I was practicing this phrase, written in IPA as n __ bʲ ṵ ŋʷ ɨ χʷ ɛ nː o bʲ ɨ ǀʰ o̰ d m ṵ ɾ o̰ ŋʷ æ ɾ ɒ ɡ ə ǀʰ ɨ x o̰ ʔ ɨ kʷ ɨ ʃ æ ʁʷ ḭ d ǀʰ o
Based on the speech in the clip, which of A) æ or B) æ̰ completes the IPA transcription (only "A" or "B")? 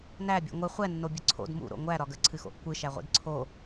A